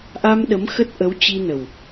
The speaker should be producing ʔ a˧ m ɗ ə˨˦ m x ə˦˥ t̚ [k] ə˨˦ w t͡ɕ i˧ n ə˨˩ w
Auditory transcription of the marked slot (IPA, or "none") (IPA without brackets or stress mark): ʔ